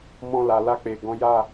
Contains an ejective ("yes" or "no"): no